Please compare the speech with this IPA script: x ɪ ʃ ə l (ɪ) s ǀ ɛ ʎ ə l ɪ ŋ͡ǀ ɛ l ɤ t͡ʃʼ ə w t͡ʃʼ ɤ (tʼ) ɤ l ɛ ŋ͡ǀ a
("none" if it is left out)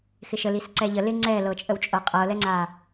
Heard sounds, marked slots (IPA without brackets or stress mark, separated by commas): i, qʼ